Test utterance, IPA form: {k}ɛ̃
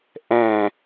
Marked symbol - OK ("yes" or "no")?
no